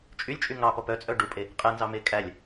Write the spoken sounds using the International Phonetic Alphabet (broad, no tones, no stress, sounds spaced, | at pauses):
t͡ʃʼ y lʲ t͡ʃʼ y ŋ ɑ p ɔ p œ t͡sʼ œ ɖ u pʼ e | qʼ ɛ n z ɑ m e kʼ æ lʲ